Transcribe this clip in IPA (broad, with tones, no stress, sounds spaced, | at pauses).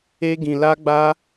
e˦ ɡ ĩ˧ l a˦ ɡ͡b a˦